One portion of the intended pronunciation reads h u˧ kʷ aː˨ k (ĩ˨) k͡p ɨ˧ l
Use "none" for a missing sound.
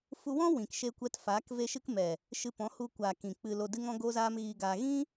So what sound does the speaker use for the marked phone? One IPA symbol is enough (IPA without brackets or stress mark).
ĩ˨